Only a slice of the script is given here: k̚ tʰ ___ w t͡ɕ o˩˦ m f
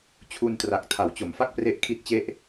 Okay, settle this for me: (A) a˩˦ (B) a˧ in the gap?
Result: A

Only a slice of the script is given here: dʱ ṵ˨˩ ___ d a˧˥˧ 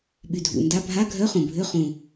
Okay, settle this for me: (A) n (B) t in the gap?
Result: A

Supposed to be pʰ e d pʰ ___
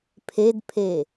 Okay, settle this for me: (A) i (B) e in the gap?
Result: B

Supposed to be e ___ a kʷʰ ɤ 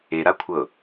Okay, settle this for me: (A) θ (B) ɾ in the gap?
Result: B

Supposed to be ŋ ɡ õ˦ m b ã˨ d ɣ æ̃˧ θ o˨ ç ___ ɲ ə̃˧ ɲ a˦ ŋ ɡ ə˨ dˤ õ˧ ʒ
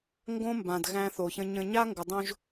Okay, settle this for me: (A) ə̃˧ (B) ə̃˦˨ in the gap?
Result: A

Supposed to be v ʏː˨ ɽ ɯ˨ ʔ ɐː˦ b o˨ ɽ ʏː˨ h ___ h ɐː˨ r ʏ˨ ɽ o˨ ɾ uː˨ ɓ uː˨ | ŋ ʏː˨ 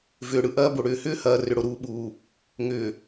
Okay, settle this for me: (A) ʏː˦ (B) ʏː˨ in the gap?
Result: A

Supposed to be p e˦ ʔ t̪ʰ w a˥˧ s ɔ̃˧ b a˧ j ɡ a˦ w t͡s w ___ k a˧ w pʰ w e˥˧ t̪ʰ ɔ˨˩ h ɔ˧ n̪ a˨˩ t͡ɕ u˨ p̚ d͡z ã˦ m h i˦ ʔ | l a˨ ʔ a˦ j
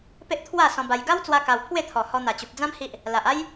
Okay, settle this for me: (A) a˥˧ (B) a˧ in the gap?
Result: B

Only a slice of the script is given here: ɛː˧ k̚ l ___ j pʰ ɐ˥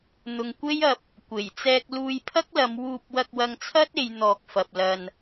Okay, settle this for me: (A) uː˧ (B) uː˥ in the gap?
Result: A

